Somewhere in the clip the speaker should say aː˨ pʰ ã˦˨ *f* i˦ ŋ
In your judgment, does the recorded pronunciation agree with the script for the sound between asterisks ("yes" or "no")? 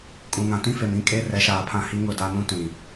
no